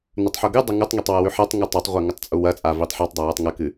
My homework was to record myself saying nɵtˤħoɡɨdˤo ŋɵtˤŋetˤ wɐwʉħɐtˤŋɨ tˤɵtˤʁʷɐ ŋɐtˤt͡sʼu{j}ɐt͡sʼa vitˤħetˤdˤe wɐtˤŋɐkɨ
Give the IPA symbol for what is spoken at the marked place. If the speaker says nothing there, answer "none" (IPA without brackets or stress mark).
w